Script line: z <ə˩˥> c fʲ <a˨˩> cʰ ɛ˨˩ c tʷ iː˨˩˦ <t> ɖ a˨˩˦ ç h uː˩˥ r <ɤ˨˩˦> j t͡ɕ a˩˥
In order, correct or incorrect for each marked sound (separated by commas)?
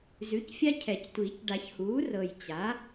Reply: incorrect, incorrect, incorrect, incorrect